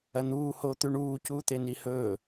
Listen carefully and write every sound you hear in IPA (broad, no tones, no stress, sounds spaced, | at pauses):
ɐ n̪ uː h oː t̪ ʉ ɳ uː c uː t̪ e n i h ɵː